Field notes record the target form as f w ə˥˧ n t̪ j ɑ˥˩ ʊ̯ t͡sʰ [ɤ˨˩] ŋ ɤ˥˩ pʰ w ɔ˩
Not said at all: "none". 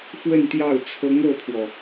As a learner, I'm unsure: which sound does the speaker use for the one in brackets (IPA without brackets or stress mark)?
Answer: ɤ˧˥